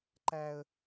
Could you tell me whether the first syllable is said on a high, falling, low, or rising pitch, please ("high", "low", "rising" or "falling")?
high